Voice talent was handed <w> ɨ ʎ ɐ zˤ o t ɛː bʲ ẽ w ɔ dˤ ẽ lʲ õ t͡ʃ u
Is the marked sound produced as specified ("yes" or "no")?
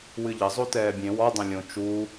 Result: yes